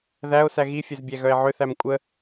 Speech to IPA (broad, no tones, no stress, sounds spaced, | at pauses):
ð æ o̯ s æ ɣ i fʲ œ z bʲ æ ɣ œ e̯ ʕ ʏ θ æ m kʷʼ ə